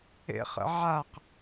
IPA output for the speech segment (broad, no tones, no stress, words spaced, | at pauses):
ḛχə̰ʕaq